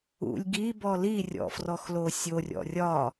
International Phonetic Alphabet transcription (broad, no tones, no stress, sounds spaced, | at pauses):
ṵ lʲ ɡ i b ɔ l i rʲ ɔ̰ f r ɔ x l o sʲ o rʲ ɔ̰ rʲ ɒ